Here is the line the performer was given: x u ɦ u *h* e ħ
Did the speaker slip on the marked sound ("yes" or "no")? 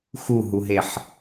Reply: yes